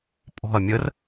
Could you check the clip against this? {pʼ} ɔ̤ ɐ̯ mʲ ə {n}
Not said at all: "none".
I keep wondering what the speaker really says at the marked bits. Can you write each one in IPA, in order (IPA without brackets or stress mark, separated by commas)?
pʼ, r